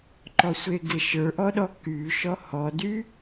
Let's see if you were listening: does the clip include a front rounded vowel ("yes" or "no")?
yes